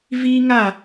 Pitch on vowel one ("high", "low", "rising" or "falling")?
high